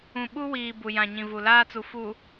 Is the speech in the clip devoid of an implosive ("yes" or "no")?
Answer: no